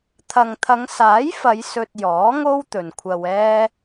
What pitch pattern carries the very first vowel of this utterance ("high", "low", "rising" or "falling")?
low